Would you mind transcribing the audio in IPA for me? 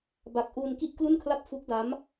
b a˨˩ k̚ ʔ u˧ n k i˥˩ ʔ k l u˥˩ n kʰ l a˥˩ p̚ f u˦˥ k̚ d a˦˥ m

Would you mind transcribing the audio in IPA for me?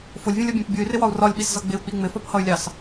f ʊ lʲ vʲ ũ lʲ ʌ bʲ æ̃ p bʲ u y̯ r ɪ w ɒ u̯ r ɒ lʲ ɓ i s z ʌ ɡ͡b ɪ u̯ k͡p i ŋ͡m ɪ f ɒ p h ʌ y̯ lʲ ɑ s

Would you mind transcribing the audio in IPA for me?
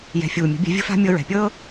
j ɛ̤˨ fʲ uː˨ mʲ ə̤˨˦ bʲ ɛ̤˧ vʲ ə̤˦ f a̤˦ mʲ ɤ˧ ɹ ɛ̤˨ pʲ ɤː˦

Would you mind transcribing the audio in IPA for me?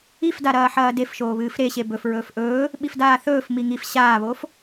i f d a ɾ ɐː ħ ɐː d e f ʃ oː β ɨː f ɾ e ɕ e b ɵ f ɹ ɵː f ʔ ɵː | ɓ i f d aː θ ɵː f m i ŋ i f ɕ aː β oː f

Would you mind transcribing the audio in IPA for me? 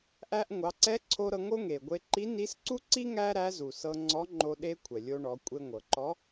ʔ æ˧ ʔ ŋʷ ɑ˩˧ ǀ ɛ˧˥ ǀʰ o˧ ɾ ɤ˧ ŋ o˥ ŋ e˩ ɡʷ e˧ ǃ i˧˥ n i˧˥ s ǀ u˥ ǀ i˥ ŋ æ˥ ɾ æ˧˥ z u˩ s ɤ˧ ŋ͡ǀ ɔ˧˥ ŋ͡ǃ o˧ ɗ e˧ kʷʰ ɛ˩ lʲ o˧ ɳ ɔ˩˧ kʷʼ e˧ ŋʷ ɤ˩ ǃ ɔ˧˥

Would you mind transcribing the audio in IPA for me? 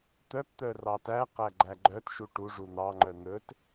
t̪ œ p t̪ œ r ɑ t æ q æ ɡ͡ǃ æ ɡ͡ǃ œ t ʃ u ʈ u ʐ u n̪ ɑ ŋ͡ǃ œ n̪ ɵ t

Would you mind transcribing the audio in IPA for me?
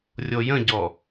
rʲ o j ə̃ ɟ ɔ

